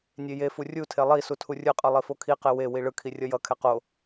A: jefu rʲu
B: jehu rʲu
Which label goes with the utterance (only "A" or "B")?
A